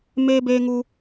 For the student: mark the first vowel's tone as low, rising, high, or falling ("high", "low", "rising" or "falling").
high